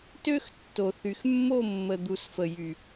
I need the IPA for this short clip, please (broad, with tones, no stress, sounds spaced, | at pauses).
t ø˦ x tː o˨ θ y˨ x mː o˦˨ mː ə˨ d̪ u˨ s f ə˨ j y˨